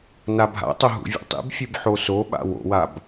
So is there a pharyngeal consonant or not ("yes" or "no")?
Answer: yes